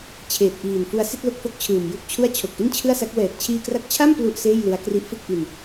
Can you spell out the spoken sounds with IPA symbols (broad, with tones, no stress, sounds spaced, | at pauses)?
t͡ɕʰ eː˨˩ t̚ ʔ iː˨˩ n f u˧ a̯ s i˥˩ t̚ l o˦˥ k̚ f o˦˥ k̚ t͡ɕʰ ɯː˨˩ m j u˥˩ k̚ t͡ɕʰ u˥˩ a̯ t͡ɕʰ o˨˩ k̚ ʔ i˥˩ n t͡ɕʰ ɯ˥˩ a̯ s a˦˥ k̚ w ɛː˨˩ t̚ t͡ɕʰ iː˧ k r a˦˥ k̚ t͡ɕʰ a˥˩ m p l u˥˩ ʔ s eː˥˩ j l ɯ˦˥ a̯ k r i˦˥ ʔ f ɯ˥˩ k̚ ʔ i˧ n